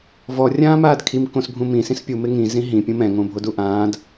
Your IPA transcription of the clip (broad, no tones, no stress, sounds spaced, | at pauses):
v ɔ rʲ ãː m aː d kʰ i m k õ s bʱ ũ m ĩ s ĩ s pʲ u m ɪ ŋ ĩ z ĩ ɦ ĩ pʲ ũ m ɛ̃ ŋ õ bʱ o d u ʔ ãː d